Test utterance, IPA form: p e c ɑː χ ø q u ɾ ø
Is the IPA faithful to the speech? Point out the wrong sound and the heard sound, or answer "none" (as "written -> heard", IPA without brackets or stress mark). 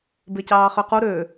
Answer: p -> b